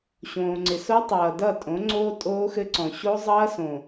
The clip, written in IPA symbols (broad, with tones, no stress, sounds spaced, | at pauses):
ɕ õː˨ ŋ͡ǀ ɪ˨ s o˦ tˤ ʌː˨ d ʌ˦˨ tʼ õ˨˦ ŋ͡ǀ oː˦ tʼ oː˦ x ɘ˦ ǀ ɔ̃˨ ɕ o˦ zˤ ʌː˦ s õ˨